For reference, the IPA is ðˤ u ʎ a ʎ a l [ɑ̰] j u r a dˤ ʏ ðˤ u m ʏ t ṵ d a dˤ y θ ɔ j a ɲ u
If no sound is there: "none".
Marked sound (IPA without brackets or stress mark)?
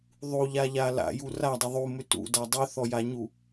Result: a̰